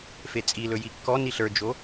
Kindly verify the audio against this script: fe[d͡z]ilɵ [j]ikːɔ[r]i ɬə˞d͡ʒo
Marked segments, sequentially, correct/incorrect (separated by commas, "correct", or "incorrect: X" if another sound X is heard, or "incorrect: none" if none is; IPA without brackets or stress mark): incorrect: t͡sʼ, correct, incorrect: n